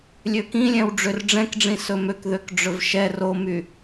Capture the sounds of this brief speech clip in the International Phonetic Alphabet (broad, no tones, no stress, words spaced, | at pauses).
lʲøkĩlʲɛ̃w ɖ͡ʐørɖ͡ʐɛ̃kɖ͡ʐĩ sɵmøkðøk ɖ͡ʐɵvʃɛ romy